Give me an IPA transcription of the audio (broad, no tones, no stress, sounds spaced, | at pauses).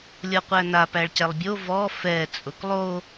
lʲ ɤ qʷ æ n a p æ ɭ c ɛ lˠ bʲ o v ɔ f ɛ t͡sʼ ʊ k lˠ o